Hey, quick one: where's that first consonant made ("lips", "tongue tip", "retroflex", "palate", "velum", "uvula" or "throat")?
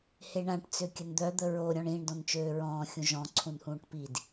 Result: throat